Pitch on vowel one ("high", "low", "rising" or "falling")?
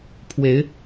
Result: rising